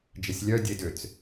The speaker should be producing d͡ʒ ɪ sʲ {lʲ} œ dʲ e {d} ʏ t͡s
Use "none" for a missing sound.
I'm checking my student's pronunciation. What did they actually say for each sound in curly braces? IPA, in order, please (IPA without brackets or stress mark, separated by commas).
lʲ, d